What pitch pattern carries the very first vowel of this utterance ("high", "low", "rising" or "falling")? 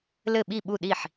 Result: falling